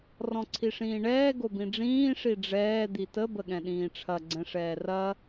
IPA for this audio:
rɔ̃ǀʰiʂĩːɳɛː ɡobĩɖ͡ʐĩː ʂiɖ͡ʐɛː d̪itə bəɠɛ̃ɗĩːʈ͡ʂʰɐ ɡ͡ǀɛ̃ʂɛːrɐ

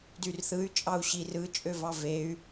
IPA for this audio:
dyrθɯy̯ t͡ʃʼɑu̯ɕirɯ t͡ʃʼøvɑvey̯

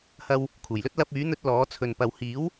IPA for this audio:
hɐ˧w | kʰuː˨˩jlɵ˥t̚ lɐ˧p̚yː˨˥n̪ɵ˧t̚ lɔː˨˥ t͡sʰɵ˨n pɐ˨w hiː˨˥w

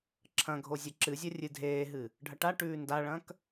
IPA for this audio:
ǁʰɐ̃ɡʱo zʲɐǁɨzʲɐ rʲɨdʱeːɦɨ | ɖʱɐʈaʈʉː ndaɭɐ̃k

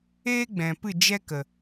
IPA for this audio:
eː˦ɡ͡bɛ̃˨pɨ˦˨ d͡ʒɛ˦kə˨

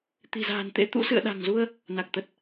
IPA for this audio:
t̪i̤˨˩za̤ː˨˩nt̪ḛ˧˥ t̪ṵ˧˥ sɨ̰˧˨ə̯ɗa̤˨˩ŋzu˧ə̯ | na˨˩k̚t̪ə˨˩t̚

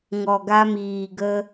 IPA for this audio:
ŋɔ˨ɡa˧miː˨ɡə˧

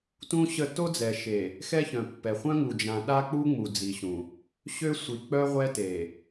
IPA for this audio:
tũ˦ɕə˦˨ to˦d͡zɛ˨ʃe˨ | xɛ˦çœ̃˨pːɛ˨ χʷœ̃˦ŋu˨ d͡ʒã˨ ɗa˦k͡pu˦ŋ͡mu˨ d͡zi˨ɕũ˨ | ɕø˦sʷi˨ k͡pœ˦ ʁʷɛ˦te˨

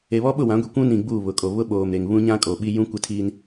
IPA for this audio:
e˨βɔ˦ɓʊ˦˨ wã˨˦ɡʷi˨ kʷũ˦nĩ˨ ɡ͡buː˦˨βʊ˨ kʼo˨βʊ˦ɓoː˨mɾe˨ŋ βũ˦ɲã˦ kʼo˨ɓi˦ jũ˦kʷɪ˦tʰiː˦n

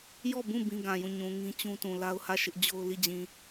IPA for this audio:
jɔ˦˨bũ˦˨ bĩ˦ɡã˨jũ˦˨ ɲũ˨ ŋĩ˦t͡ɕũ˦tũ˨ la˦ʊ̯hä˦˨ ʃɪ˦ʔd͡ʑo˦ʊ̯ li˦˨d͡ʑĩ˨

